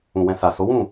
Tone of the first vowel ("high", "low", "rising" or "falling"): low